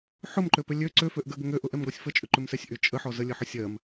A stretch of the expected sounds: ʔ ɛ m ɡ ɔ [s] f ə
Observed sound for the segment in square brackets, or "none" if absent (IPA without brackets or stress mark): sʲ